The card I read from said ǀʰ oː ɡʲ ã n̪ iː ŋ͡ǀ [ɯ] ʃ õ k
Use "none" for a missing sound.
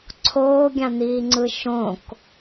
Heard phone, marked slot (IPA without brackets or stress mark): ɯ